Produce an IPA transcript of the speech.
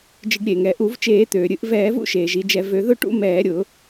d͡ʒɨ˧˩˧ɖɾʲeː˩ŋɛ˩˧ ʔu˧˩˧vt͡ʃeː˧˩˧t̪øː˩ ɾʲɨ˧˩˧ʔvɛː˧˩˧vṵ˥˧ ʃeː˩ʒi˩˧d͡ʒɛ˧˩˧ vø˩˧ðʊ˥˩ʈṵ˥˧ mɛː˧˩˧ɾʲʊ˧˩˧

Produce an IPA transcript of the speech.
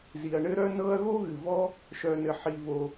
zi˩ɐ̯ɳɘ˦ɾœ˥ nɤ˦ɐ̯ɣo˥ ɣɨ˨vɔ˥ | ʃœ˨nɘ˩ħi˨ vo˦

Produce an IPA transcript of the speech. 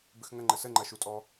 bʏxŋɐŋ͡ǃə səŋ͡ǃɐʃutʼɔ

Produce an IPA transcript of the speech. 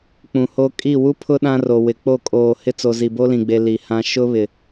k͡pũ˨ho˦ kʼi˦˨ wu˦pʰʊ˦ ɗã˦ro˨wɪ˨ k͡po˦˨kʼoː˨ hɪ˦t͡so˨zi˨ bo˦lĩ˨ɡ͡be˨ li˨hã˦ ʃʊ˦βɪ˨

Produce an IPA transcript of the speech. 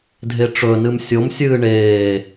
dʱeʈ͡ʂɵnɨm sʲomsʲɨː ɳeː

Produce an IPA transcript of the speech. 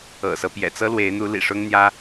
ɤ̰˨˩sɤ˦ pjɛ̰˨˩t͡sɤ˥lwe˧˥ɪ̯n̪u˧˥ lḭ˨˩ʂʊ˥ŋn̪jä˥

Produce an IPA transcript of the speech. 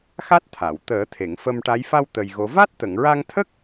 xa˦˥t̚t̪ʰa˨˩˨w t̪əː˨˩˦t̪ʰe˨˩˨ŋ fə˧mʈa˧˥j fa˧w t̪ə˧jɣo˧˥ va˦˥t̚t̪ə˨˩˨ŋɹa˧ŋt̪ʰə˦˥k̚

